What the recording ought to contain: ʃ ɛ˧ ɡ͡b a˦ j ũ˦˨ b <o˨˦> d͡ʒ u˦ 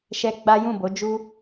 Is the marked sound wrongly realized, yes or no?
no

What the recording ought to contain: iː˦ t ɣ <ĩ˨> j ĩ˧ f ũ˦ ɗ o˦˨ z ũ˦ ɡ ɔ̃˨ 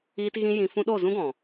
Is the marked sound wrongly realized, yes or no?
yes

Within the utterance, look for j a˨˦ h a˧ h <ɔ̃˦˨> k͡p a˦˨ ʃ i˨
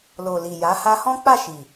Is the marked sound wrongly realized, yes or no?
yes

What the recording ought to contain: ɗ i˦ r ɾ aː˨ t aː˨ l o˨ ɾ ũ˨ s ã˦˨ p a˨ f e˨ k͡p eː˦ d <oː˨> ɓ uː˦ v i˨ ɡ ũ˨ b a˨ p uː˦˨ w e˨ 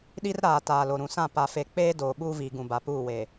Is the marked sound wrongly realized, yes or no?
no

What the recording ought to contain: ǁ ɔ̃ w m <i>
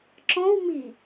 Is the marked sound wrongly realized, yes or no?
no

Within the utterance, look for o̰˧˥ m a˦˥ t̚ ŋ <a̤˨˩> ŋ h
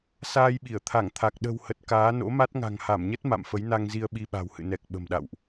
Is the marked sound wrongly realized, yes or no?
no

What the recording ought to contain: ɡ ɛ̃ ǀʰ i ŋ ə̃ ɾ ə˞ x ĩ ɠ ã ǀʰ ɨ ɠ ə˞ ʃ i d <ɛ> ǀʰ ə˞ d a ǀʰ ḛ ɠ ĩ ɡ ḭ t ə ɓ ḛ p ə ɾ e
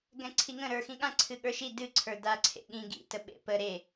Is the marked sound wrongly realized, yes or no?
yes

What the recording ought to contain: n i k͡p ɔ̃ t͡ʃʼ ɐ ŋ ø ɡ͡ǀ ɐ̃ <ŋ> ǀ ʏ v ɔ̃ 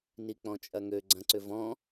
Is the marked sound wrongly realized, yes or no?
yes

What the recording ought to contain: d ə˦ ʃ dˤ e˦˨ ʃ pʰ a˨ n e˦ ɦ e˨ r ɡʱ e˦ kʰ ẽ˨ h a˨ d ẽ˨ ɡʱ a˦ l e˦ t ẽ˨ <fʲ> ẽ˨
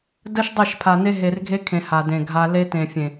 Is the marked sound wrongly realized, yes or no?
no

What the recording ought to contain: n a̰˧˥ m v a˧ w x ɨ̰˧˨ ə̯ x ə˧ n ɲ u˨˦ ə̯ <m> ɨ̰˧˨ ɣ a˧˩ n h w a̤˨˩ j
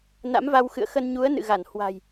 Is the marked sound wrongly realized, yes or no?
yes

